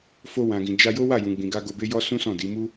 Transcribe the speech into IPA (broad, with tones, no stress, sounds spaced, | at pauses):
f o˧ w ã˨ ɡ ĩ˨ d͡ʒ a˧ j o˦ w a˦˨ j ũ˨ ɡ͡b ĩ˨ ɡ a˧ ɡ o˧ b e˦ j ɔ˦ s ũ˦ s ɔ̃˦˨ d i˨˦ m u˦